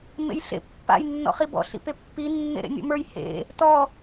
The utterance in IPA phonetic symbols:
m ḛ j ɬ ḛ pː a̰ j nː ɔ̰ χ i b ɔ̰ ɬ ḭ p e pː i nː ḛ ɾ ḛ nʲ o̰ m ə˞ j h ḛ | t ɔ

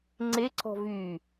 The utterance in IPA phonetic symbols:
ŋ͡ǀ e ǀ ɔ̤ v y

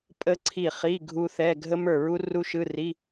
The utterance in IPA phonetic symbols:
pʼ ə˦˥ ǀʰ i˦˨ χ i˧˥˧ ɡʱ u˦˥ θ ɛ˧˥˧ ɡʱ ə˦˥ m ə˞˦˨ ɹ u˦˥ r u˦˥ ʃ ɯ˧˥˧ r i˧˥˧

